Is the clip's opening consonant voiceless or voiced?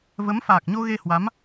voiced